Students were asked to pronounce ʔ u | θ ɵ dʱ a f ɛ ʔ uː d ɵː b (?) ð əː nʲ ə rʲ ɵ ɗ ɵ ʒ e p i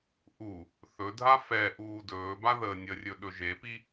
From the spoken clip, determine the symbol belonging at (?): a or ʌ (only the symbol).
a